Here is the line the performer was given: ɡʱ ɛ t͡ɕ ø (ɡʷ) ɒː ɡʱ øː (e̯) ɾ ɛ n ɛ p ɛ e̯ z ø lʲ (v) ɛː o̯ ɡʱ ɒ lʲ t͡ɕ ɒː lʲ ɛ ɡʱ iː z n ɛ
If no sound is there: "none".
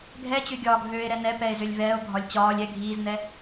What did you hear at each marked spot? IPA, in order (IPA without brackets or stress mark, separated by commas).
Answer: ɡʲ, e̯, v